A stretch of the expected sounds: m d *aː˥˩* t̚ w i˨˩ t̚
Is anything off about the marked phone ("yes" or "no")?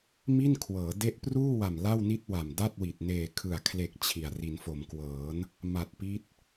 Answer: yes